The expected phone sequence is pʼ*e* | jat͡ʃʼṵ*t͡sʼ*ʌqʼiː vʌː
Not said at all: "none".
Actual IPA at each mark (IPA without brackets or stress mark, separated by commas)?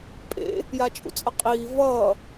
ḛ, t͡sʼ